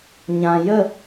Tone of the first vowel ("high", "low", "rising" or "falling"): low